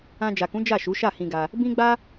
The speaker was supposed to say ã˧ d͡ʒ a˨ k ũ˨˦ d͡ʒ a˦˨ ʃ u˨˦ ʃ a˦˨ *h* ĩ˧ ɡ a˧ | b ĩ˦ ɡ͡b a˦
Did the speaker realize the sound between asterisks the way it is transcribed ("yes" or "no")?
yes